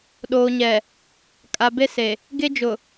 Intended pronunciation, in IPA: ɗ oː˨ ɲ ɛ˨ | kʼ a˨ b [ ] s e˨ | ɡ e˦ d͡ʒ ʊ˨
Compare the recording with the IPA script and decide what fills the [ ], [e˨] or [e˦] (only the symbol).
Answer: e˦